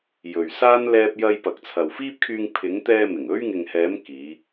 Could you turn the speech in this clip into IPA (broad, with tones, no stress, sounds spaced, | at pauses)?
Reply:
j ɵ˨ ɥ s aː˥ n l ɛː˧ p̚ j ɐ˧ j p ɐ˨ k̚ t͡sʰ ɐ˨ w f iː˥ p̚ kʰ yː˧ ŋ pʰ ɪ˨˧ ŋ t̪ ɛː˧ m ɪ˨˩ ŋ ɵ˥ ɥ ŋ ɪ˨ ŋ h ɛː˨˧ m k iː˨˧